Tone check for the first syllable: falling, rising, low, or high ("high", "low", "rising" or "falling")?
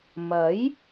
rising